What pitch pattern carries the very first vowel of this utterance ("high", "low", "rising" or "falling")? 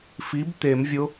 rising